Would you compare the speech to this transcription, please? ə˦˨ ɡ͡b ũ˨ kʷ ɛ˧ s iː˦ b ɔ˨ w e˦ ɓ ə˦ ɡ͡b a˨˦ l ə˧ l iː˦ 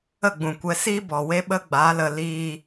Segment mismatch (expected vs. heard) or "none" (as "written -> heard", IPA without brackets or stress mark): none